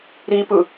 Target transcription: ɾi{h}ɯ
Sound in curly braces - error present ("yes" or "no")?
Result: yes